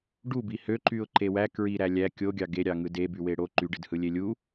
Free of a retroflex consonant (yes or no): no